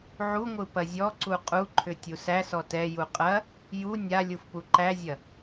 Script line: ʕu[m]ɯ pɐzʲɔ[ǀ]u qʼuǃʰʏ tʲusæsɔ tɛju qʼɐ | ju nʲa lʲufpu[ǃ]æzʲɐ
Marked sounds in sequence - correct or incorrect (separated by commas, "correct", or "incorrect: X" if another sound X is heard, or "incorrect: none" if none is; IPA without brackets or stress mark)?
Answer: incorrect: ŋʷ, correct, correct